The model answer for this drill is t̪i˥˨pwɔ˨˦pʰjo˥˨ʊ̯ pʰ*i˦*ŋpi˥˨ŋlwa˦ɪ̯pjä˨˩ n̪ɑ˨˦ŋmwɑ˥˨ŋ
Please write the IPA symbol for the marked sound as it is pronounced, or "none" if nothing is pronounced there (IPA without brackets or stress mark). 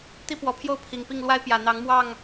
i˨˩